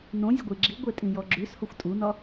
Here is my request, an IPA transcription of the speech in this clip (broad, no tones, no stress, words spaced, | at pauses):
nõ zʲɘɡʷiɡ͡ǁiɡʷe tʼĩjɔɡ͡ǁʉshoxʷ tʼunɒ